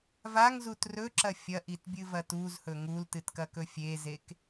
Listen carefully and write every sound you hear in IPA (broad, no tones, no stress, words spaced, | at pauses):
vaŋzut rɵǁɐ fʲɐʔitbʲɨvɐ tuzhɵ ŋultɨtkɐkɵ fʲezek